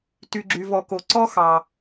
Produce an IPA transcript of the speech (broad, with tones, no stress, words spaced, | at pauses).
ty˩ɡ͡ǁy˩vɔ˩ko˩ ǀɔ˥xɑ˩